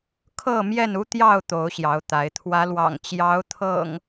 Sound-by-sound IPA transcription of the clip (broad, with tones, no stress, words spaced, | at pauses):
kʰɤ˥˨mjɛ˥˨nu˦t̪jɑ˥˨ʊ̯ t̪o˨˦ʊ̯ɕjɑ˨˦ʊ̯t̪a˨˦ɪ̯ t̪ʰwä˨˦lwɑ̰˨˩ŋ t͡ɕjɑ˨˦ʊ̯ t̪ʰɤ̰˨˩ŋ